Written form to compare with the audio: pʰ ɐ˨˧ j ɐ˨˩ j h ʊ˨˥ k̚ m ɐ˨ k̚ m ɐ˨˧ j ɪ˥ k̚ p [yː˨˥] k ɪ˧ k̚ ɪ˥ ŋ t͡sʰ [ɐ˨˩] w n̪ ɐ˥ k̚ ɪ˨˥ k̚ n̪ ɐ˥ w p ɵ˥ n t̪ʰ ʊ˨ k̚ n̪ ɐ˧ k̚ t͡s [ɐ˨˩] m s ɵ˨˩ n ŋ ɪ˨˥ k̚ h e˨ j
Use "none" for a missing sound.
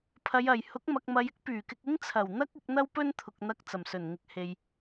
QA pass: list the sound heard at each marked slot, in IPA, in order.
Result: yː˨˩, ɐ˨˩, ɐ˨˩

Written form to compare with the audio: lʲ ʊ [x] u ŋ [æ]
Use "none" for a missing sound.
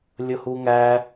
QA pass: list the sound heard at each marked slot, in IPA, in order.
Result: h, æ

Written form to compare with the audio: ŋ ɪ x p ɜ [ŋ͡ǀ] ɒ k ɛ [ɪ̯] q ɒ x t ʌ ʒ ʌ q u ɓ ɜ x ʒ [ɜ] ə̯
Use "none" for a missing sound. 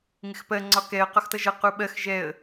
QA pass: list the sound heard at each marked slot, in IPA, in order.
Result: ŋ͡ǀ, ə̯, ɛ

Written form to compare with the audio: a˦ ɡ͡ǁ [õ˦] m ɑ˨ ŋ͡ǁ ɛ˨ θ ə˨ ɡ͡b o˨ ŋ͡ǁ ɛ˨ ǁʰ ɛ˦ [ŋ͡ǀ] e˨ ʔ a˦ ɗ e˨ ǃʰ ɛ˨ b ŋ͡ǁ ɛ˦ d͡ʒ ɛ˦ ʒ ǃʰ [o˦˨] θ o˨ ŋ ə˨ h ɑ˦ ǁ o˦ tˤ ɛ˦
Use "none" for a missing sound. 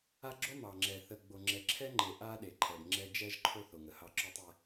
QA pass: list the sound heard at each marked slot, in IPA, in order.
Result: o˦, ŋ͡ǃ, o˦

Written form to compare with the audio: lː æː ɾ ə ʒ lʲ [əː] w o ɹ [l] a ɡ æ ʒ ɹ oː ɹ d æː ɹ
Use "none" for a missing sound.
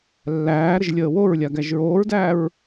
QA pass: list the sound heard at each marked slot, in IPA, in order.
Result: əː, lʲ

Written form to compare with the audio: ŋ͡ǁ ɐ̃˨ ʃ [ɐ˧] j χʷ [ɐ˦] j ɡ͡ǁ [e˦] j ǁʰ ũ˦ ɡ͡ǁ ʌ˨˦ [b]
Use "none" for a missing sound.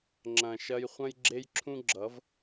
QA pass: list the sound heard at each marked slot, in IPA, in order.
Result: ɐ˧, ɐ̃˦, e˦, v

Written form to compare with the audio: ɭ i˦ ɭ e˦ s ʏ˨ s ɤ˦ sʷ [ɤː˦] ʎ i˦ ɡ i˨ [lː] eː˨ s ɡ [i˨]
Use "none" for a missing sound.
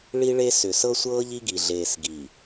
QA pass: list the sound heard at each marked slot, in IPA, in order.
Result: ɤː˦, ɮ, i˨

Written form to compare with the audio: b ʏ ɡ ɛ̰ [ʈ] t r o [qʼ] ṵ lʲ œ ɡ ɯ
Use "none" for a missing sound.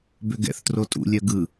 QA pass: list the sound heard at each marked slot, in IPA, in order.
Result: θ, tʼ

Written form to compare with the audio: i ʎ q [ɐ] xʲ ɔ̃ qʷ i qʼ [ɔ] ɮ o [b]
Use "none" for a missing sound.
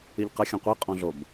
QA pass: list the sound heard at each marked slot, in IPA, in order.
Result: ɐ, ɔ̃, b

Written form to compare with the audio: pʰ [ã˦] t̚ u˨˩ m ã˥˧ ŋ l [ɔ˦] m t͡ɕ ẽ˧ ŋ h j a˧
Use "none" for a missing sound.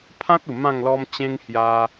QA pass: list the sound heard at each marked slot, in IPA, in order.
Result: ã˦, ɔ˦

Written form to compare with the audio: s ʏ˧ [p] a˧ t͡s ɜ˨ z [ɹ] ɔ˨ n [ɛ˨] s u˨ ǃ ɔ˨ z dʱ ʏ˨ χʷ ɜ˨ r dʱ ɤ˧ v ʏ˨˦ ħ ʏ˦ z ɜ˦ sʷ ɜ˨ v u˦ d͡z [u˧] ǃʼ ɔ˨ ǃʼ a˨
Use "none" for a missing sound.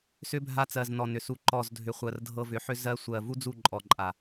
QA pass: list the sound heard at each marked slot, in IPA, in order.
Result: bʱ, n, ʏ˨, u˦˨

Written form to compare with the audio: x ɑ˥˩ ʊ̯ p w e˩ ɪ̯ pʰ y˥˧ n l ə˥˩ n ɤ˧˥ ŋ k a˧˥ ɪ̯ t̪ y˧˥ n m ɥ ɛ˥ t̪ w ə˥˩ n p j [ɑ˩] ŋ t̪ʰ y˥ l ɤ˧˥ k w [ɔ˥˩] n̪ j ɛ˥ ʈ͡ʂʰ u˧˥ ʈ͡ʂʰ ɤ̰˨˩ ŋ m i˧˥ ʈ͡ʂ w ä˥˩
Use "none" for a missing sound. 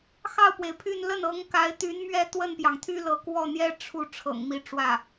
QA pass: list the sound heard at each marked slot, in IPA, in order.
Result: ɑ˩, ɔ˥˩

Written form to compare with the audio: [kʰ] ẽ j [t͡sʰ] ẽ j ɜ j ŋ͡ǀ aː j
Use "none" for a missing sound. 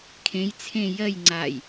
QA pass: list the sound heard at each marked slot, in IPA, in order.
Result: kʰ, t͡sʰ

